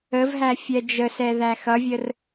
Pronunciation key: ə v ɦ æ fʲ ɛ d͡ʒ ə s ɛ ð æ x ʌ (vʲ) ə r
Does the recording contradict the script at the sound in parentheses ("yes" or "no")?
no